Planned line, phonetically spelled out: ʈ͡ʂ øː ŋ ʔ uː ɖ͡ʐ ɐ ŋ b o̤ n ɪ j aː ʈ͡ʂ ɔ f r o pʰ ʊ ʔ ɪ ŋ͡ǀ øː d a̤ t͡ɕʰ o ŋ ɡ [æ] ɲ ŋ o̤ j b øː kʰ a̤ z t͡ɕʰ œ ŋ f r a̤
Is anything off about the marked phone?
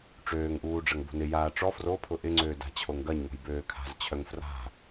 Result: yes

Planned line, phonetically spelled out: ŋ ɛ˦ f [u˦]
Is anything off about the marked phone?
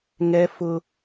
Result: yes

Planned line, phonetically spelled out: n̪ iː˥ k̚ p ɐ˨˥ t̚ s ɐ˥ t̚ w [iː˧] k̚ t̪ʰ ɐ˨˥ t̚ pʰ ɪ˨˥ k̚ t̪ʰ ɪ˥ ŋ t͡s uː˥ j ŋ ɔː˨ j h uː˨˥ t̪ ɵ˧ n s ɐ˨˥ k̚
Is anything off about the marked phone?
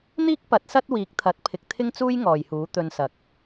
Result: yes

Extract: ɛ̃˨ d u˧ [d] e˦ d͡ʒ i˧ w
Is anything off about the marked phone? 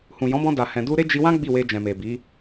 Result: yes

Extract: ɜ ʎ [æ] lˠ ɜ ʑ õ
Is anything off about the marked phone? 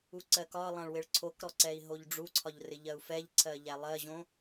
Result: no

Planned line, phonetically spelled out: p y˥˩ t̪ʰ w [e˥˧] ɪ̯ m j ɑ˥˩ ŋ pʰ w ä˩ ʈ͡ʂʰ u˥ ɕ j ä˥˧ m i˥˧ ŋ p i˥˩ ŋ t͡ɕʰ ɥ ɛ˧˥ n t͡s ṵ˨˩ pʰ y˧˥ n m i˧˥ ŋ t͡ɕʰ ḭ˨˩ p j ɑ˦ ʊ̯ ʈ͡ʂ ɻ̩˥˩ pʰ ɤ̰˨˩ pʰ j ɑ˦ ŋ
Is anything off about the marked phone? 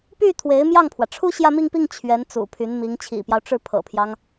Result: yes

